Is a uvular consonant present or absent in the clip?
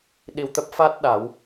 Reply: absent